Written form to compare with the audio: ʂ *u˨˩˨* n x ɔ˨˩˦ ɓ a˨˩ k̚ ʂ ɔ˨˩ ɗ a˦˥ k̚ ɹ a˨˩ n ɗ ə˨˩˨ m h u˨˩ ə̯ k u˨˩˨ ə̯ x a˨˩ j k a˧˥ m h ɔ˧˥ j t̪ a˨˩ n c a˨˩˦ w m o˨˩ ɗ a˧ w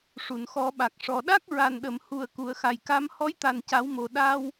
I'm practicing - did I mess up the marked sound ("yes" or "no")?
no